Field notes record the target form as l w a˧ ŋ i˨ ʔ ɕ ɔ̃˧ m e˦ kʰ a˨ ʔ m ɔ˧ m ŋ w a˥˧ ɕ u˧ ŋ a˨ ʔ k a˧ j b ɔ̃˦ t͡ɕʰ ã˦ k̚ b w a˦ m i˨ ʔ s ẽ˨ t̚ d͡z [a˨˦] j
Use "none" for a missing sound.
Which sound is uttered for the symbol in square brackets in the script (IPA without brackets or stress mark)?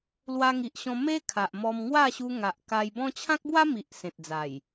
a˨˩